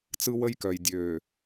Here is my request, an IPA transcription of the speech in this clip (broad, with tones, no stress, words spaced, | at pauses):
t͡sɯ˦wə˦jkœ˨j dʲø˨